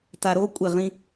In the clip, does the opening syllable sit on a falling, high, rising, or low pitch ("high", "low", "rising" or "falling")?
low